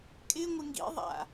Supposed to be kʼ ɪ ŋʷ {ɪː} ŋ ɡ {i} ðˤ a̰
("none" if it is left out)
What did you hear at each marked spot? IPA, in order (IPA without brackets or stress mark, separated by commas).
ɪ, ḭ